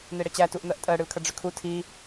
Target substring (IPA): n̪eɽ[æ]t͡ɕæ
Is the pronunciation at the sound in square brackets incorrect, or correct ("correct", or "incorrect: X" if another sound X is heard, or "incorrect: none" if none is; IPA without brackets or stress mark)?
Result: incorrect: ə